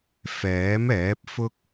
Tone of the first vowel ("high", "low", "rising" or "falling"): rising